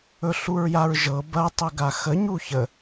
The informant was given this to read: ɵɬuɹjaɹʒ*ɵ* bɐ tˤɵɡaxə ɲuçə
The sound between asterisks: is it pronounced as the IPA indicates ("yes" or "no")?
no